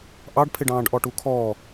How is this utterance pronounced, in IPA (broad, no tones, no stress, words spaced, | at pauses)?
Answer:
ʔɑɖpʰɪɖɑ̃ːɖʔɔ ʈukʰɔː